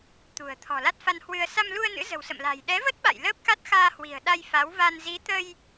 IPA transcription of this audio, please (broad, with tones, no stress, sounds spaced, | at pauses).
t̪ ṳ˨˩ ə̯ t̪ʰ ɔ̤˨˩ l a˦˥ t̚ f a˧ n h w ɨ˧ ə̯ s a˧ m l u˧ ə̯ n ɨ̰˧˥ z ə̤˨˩ w s ə̰˧˨ m l a̤˨˩ j ɗ ɛ˨˦ v ə˦˥ t̚ ɓ a̰˧˨ j l əː˦˥ p̚ k a˦˥ t̚ x aː˧ h w i̤˨˩ ə̯ ɗ a˧ j f a˨˦ w v a˧ n z i˨˦ t̪ ə˧ j